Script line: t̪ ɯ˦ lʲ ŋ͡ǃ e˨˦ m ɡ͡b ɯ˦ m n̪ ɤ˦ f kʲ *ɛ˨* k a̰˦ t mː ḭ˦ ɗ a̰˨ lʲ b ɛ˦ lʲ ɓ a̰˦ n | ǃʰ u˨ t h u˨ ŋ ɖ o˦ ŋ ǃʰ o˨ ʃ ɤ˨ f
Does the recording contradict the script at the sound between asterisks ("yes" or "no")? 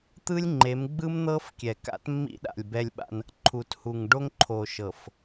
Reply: no